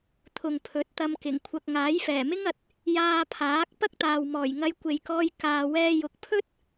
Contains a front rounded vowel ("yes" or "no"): no